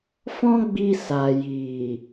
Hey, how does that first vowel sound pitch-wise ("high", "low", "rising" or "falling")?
high